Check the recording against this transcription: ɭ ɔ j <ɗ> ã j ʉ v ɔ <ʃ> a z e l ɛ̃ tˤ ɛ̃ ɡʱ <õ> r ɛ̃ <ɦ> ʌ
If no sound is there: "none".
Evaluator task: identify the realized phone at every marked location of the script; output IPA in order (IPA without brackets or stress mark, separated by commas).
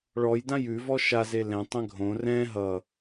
d, ʃ, õ, ɦ